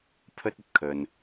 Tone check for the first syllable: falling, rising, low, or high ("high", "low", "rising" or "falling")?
high